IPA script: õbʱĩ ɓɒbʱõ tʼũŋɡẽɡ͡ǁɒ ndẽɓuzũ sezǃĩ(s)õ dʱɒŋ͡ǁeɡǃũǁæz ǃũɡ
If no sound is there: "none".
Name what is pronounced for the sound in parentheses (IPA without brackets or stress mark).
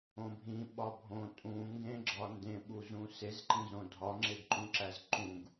z